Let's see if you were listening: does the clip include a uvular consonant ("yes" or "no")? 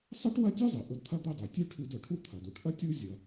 no